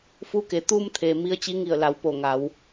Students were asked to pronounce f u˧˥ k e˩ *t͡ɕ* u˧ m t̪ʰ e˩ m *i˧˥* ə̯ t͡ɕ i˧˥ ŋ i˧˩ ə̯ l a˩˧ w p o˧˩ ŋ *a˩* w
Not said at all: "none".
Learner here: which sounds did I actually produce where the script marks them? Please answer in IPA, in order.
t̪, i˧˥, a˩˧

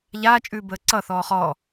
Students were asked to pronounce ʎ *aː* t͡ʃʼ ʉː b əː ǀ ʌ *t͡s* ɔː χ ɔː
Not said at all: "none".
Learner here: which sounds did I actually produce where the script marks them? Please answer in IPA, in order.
aː, θ

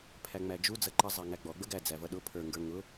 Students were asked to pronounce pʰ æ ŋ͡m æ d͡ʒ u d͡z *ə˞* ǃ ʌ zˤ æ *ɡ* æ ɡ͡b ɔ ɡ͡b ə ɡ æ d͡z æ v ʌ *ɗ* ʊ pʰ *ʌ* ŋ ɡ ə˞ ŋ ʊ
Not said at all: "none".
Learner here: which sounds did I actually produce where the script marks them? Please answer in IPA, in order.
ʌ, ŋ, ɗ, ə˞

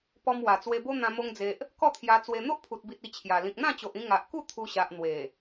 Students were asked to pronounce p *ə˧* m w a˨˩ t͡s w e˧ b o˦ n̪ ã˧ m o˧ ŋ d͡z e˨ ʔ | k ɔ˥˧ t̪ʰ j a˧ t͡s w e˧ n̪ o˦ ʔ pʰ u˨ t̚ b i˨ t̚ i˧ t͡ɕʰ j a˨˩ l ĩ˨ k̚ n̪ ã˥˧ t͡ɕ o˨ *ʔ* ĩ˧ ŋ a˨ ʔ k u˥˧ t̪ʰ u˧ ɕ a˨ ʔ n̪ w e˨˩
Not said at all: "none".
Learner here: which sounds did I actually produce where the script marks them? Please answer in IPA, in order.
ɔ˧, ʔ

